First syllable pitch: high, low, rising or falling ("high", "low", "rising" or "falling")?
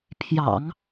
low